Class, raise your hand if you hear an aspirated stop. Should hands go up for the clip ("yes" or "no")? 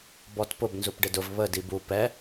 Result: no